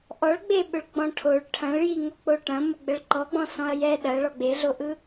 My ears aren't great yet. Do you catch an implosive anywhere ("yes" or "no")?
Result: yes